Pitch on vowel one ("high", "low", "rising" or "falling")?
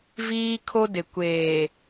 high